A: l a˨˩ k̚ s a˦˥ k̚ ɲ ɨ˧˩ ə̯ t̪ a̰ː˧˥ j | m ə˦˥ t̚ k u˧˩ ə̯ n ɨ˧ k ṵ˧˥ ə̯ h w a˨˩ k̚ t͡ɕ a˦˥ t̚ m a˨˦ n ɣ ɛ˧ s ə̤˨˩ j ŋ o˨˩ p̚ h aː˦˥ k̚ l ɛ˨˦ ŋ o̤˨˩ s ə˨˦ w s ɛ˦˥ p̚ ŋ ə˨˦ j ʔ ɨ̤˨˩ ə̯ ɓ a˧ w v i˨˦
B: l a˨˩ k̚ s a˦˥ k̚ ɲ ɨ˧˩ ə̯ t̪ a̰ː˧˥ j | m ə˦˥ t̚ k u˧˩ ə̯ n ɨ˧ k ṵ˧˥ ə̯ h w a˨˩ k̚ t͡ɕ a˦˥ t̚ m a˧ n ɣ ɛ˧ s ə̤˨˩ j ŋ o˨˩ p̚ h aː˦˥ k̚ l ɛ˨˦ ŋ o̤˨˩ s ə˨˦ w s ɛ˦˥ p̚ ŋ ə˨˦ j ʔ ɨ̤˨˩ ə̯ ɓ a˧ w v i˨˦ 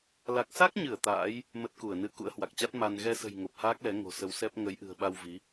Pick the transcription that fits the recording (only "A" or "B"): B